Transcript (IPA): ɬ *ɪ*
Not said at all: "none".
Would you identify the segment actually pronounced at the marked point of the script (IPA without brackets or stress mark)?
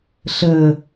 ə